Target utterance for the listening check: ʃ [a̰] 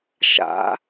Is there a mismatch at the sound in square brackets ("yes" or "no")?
no